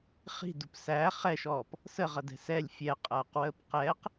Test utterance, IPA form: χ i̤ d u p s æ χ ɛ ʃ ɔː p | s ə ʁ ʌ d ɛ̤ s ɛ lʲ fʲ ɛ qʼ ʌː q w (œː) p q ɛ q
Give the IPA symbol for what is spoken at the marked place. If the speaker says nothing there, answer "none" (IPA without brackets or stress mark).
əː